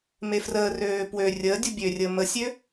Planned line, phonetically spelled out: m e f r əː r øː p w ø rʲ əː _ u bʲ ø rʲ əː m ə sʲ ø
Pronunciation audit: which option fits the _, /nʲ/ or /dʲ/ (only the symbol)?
dʲ